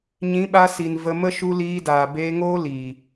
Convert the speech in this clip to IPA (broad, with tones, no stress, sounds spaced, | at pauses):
ɲ ĩ˨˦ ɓ a˧ s i˨ n v ə˧ m ə˦ ʃ u˧ l iː˧ d aː˨ b eː˧ ŋ oː˦ l iː˨